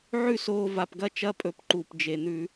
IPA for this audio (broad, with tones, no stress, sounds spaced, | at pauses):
ʕ ʉ˥˨ s oː˧ v a˨˩ p ɡ ɐ˥˨ t͡ʃ ɐ˧˥˧ pʼ ɵ˧˩˧ p ǃ u˨˩ p d͡ʒ e˨˩ n̪ ʉ˧˩˧